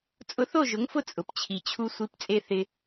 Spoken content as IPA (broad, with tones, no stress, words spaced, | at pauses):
t͡sʼʊ˧θo˥˩ʒʊ˩˥ŋfʊ˥˩ t͡sʼʊ˩pt͡ɕʰi˩t͡ɕʰu˧ sʷi˩˥pt͡sʼe˧ θɪ˧